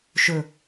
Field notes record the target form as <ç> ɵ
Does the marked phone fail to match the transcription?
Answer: yes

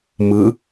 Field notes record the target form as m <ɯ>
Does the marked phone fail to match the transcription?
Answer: no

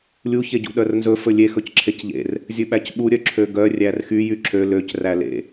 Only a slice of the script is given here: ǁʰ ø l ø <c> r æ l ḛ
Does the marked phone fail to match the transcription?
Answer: no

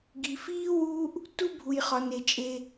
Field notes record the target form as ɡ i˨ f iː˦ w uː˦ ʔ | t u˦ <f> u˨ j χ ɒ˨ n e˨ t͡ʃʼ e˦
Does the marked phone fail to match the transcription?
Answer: yes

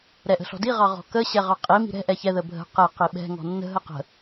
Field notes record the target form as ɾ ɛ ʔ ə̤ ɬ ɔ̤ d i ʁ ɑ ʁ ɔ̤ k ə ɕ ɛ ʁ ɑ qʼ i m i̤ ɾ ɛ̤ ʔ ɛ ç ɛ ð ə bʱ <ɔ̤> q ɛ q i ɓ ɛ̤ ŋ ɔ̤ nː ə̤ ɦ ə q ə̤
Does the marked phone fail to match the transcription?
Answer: yes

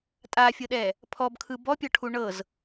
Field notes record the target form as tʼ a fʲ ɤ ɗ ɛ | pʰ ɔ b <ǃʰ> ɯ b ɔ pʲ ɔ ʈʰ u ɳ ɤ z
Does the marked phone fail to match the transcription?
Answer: yes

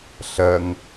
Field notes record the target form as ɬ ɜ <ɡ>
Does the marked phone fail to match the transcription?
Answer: yes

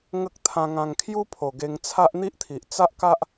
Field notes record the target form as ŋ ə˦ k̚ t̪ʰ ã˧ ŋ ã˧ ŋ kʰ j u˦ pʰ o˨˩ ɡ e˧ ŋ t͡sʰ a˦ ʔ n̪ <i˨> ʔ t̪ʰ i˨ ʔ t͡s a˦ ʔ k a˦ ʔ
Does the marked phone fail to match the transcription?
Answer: yes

